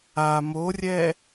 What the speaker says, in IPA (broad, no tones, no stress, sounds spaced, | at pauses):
a m o rʲ ɛ